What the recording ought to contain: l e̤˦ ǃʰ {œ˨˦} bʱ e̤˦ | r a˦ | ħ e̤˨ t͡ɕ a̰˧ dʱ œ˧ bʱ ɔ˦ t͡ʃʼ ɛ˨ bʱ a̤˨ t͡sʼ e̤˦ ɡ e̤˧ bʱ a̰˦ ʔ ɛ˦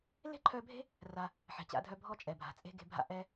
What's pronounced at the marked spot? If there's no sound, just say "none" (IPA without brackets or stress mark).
œ˧